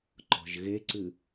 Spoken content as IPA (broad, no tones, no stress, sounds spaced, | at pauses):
ǃ ɔ̤ ʒ ɣ e ǀ ɨ